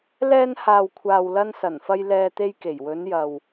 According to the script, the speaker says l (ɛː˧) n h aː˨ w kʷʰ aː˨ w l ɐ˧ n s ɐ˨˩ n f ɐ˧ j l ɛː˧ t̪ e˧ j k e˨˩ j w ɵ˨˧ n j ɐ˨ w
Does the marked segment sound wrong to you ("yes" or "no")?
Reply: no